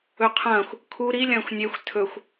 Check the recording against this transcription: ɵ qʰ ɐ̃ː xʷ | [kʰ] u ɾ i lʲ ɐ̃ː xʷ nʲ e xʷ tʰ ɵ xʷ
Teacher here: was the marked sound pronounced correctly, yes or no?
yes